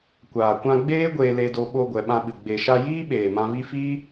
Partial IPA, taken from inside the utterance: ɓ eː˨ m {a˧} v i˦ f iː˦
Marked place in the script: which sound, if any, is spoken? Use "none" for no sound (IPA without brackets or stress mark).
ã˧